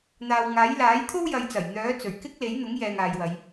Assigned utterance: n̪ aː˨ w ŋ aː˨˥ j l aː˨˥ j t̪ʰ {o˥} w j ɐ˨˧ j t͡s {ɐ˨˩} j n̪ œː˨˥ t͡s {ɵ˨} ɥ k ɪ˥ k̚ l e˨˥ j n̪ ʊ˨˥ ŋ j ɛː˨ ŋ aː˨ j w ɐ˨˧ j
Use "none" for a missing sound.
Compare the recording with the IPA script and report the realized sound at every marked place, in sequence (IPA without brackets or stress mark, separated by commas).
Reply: o˥, ɐ˨˩, ɵ˨˩